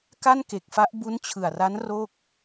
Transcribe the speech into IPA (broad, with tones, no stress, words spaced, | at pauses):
ka˥˩nke˨˩k̚fa˦˥ʔ bu˦˥nt͡ɕʰɯ˨˩a̯ra˦˥n ro˥˩k̚